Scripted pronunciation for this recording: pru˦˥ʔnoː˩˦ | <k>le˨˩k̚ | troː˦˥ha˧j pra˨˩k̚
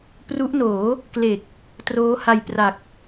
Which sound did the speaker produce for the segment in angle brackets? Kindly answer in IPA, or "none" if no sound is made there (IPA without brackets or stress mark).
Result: k